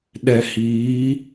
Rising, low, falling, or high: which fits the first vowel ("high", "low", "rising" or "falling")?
low